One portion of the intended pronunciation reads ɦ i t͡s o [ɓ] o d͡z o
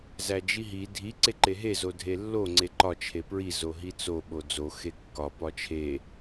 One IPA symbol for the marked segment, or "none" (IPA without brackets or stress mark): ɓ